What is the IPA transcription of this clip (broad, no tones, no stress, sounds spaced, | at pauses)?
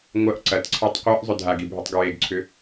ŋʷ ɐ ʔ ǀ ɐ t ǀʰ e tˤ qʷ ɛ ʔ zˤ ʏ dʱ a ɡ i bʱ i tˤ ɡ ɹ e ɡ ǀʰ ʏ